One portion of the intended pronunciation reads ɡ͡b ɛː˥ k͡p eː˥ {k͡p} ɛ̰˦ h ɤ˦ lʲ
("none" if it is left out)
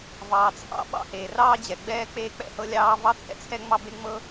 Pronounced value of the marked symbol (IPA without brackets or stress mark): k͡p